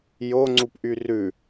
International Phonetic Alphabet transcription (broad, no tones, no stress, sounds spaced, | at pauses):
j o ŋ͡ǀ u p ʔ y r ʉ